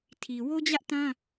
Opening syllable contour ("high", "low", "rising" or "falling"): low